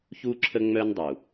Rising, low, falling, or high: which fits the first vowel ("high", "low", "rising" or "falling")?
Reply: high